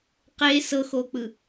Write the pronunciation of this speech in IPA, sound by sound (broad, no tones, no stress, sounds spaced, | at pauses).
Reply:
q e s ɤ x o k͡p ɯ